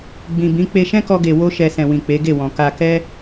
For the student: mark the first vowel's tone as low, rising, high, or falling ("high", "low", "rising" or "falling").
low